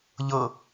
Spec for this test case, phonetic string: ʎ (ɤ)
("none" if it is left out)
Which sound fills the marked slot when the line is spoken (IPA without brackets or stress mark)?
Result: ɤ